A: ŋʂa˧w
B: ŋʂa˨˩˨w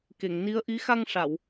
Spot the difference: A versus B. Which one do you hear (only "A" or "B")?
B